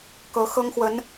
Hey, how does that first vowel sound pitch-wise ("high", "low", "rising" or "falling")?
rising